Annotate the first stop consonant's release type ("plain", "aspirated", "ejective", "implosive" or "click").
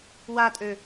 ejective